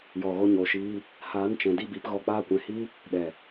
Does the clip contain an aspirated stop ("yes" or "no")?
no